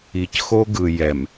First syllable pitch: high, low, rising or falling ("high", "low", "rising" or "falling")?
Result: low